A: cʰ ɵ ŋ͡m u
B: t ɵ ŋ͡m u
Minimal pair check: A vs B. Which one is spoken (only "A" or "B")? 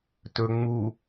B